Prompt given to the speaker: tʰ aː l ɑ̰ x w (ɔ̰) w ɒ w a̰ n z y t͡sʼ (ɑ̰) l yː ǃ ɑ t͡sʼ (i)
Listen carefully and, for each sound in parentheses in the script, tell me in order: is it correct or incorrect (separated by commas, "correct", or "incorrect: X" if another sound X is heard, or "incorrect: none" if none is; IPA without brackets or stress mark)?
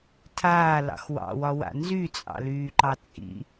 incorrect: ɑ̰, correct, incorrect: ḭ